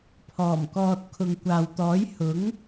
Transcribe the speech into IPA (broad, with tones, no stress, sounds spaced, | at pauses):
pʰ ɔː˨˩ m k ɔː˨ t̚ kʰ ʊ˨ ŋ kʷ aː˨ w t̪ ɔː˨˥ j h ʊ˨˥ ŋ